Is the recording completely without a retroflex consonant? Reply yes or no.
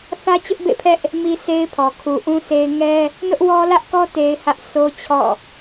yes